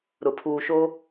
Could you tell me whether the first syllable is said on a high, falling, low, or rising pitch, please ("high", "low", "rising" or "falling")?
low